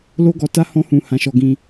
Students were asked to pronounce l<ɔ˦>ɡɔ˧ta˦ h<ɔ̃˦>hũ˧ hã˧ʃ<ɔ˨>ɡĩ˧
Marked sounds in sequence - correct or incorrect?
incorrect: o˦, correct, incorrect: ɔ˧

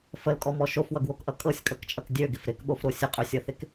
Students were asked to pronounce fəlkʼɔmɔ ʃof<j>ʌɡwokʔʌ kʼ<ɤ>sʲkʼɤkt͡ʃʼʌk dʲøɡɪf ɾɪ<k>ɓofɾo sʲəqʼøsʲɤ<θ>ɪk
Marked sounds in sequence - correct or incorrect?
incorrect: w, correct, correct, correct

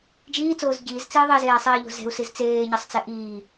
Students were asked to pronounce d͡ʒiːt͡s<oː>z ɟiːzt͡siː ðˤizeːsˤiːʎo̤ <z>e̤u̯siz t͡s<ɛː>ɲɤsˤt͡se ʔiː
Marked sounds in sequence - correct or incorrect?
correct, correct, incorrect: eː

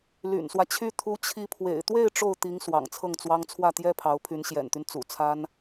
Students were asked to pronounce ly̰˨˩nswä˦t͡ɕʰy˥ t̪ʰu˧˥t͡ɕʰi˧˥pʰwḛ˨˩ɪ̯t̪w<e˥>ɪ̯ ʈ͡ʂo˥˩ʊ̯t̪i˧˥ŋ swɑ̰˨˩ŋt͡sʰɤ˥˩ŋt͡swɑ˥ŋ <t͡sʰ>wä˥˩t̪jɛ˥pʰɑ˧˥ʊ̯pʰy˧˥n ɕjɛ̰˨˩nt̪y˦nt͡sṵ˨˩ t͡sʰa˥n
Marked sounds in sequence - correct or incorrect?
incorrect: e˥˧, correct

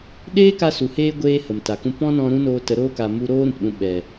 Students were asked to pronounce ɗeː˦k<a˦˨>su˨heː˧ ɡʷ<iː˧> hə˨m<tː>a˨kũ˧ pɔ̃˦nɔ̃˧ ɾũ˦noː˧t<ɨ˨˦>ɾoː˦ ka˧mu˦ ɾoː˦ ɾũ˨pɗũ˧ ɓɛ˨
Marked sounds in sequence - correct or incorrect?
incorrect: a˧, incorrect: eː˧, incorrect: t, incorrect: ə˨˦

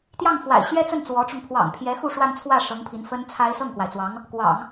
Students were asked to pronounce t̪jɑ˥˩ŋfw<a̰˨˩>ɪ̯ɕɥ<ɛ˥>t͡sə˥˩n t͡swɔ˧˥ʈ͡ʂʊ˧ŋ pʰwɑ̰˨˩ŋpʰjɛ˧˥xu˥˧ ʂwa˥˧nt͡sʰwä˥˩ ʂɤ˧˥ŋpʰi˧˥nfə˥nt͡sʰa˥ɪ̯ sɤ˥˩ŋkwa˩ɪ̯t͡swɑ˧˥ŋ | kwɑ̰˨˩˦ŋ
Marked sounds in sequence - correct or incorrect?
correct, correct

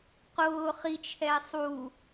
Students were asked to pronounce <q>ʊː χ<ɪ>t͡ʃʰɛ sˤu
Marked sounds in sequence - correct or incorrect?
correct, incorrect: i

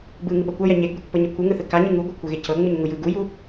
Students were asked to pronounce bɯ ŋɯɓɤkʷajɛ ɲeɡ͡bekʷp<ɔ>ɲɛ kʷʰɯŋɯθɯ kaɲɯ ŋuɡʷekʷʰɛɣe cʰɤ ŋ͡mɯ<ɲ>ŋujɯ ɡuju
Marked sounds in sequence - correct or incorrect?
incorrect: ɤ, correct

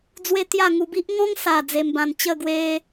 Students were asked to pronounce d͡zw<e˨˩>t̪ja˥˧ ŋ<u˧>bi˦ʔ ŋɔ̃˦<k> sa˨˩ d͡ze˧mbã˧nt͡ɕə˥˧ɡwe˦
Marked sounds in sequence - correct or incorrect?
incorrect: e˦, correct, incorrect: ŋ

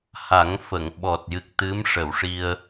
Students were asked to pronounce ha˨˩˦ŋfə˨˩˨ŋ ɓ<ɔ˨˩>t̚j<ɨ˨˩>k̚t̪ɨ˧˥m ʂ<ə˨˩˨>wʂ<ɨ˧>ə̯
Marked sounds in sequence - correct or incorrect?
correct, correct, correct, incorrect: i˧

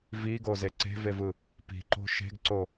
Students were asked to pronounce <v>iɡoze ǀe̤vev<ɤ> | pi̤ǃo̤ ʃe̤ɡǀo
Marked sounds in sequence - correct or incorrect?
correct, incorrect: ɯ

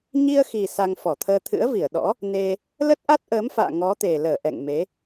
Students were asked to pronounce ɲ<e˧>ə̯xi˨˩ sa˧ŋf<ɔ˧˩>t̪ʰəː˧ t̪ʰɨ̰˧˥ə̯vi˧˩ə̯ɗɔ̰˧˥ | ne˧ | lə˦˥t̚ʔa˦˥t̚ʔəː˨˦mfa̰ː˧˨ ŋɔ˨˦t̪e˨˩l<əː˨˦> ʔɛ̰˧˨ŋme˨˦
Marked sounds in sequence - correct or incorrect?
incorrect: i˧, correct, incorrect: əː˧˩

